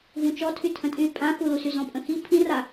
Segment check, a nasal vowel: present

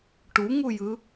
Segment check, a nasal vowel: absent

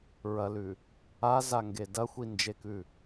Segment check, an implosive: absent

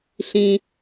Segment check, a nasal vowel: present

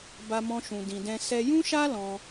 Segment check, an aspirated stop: absent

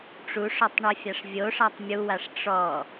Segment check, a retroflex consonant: present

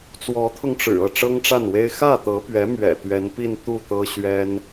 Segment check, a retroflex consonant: present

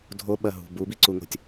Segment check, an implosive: present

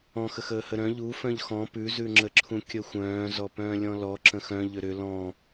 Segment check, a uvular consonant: absent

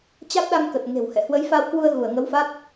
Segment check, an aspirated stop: absent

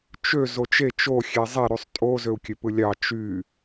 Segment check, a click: absent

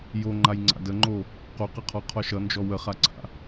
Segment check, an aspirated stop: present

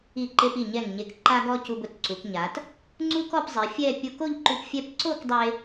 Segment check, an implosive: absent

